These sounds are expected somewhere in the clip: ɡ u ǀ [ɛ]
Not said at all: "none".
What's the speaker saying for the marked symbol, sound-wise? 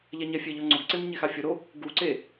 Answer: e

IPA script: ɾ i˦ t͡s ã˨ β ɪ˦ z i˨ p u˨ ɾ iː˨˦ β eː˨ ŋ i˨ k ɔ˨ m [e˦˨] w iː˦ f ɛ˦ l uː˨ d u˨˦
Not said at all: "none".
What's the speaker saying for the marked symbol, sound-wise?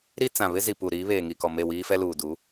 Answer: e˦˨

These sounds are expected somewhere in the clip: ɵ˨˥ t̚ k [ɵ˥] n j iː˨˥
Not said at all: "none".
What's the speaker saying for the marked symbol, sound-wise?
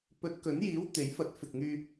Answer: ɵ˨˥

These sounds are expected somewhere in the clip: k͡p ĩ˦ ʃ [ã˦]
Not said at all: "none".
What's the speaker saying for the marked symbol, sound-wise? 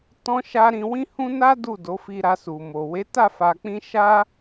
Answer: a˦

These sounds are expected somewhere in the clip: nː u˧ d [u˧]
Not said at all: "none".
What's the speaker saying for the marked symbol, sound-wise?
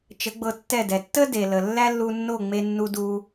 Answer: u˧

